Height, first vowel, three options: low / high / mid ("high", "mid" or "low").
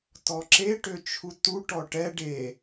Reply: mid